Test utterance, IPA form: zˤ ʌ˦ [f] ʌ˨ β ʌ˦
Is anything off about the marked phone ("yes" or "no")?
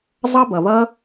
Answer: yes